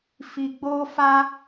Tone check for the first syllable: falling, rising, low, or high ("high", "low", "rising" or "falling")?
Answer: low